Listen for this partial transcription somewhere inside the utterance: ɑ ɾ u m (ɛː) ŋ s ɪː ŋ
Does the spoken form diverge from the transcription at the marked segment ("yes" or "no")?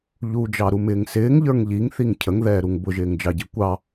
yes